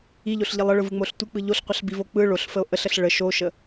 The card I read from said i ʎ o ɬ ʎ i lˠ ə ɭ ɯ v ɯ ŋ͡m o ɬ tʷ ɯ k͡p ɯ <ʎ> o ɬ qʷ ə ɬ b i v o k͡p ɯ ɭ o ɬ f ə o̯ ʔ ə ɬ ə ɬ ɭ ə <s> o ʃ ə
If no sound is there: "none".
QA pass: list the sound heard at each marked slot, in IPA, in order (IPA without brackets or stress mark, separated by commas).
ʎ, ʃ